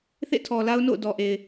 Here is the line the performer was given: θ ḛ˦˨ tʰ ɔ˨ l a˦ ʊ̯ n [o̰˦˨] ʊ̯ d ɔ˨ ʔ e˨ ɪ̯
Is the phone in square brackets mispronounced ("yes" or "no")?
no